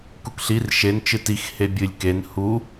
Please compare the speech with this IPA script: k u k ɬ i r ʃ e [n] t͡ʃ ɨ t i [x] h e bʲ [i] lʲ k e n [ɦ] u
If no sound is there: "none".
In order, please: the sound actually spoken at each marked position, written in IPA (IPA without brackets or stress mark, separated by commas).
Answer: n, x, ɨ, h